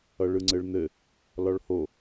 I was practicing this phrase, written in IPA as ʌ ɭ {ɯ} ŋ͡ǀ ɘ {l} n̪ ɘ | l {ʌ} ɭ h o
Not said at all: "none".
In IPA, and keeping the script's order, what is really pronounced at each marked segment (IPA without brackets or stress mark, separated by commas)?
ɯ, ɭ, ɒ